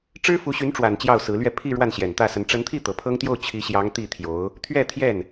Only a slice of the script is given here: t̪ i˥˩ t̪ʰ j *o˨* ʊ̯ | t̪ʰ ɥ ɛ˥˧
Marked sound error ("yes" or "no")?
yes